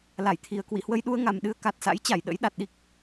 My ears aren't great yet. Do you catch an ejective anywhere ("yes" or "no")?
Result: no